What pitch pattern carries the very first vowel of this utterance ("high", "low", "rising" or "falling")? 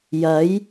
rising